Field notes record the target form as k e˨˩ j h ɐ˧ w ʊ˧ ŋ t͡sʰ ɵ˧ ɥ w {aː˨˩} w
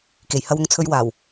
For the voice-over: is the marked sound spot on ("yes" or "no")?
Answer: yes